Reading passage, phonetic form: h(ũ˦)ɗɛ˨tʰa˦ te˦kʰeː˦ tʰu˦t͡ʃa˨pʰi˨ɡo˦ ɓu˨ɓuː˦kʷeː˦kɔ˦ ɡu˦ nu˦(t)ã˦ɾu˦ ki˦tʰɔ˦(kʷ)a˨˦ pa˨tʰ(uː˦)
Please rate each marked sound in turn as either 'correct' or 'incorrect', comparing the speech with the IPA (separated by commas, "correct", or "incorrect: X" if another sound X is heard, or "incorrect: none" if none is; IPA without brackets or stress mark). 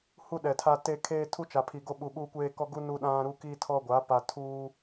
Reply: incorrect: u˦, incorrect: ɗ, incorrect: ɡʷ, correct